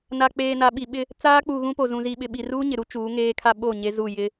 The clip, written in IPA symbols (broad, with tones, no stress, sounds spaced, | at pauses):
n a˨ k͡p eː˨ n a˨ ɓ i˨ ɓ ɪ˦ | t͡s aː˦ k͡p u˨ ɣ ũ˦ p o˨ z ũ˨ z i˨ ɓ ɪ˨ ɓ i˨ r uː˦ ɲ ɪ˨ ɾ u˦ t͡ʃ uː˨˦ ŋ eː˦ kʰ a˦ ɓ o˦˨ ɲ e˦ z u˦˨ j ɪ˦